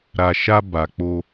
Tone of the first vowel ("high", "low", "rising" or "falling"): low